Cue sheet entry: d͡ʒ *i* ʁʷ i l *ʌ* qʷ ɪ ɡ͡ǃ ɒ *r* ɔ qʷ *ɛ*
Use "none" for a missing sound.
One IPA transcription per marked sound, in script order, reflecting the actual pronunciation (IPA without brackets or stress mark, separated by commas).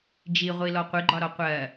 i, ɔ, ɾ, ɜ